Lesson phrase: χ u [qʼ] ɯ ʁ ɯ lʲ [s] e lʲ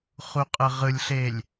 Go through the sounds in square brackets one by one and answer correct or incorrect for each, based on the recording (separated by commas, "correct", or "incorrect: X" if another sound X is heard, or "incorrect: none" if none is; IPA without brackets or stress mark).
correct, incorrect: ɬ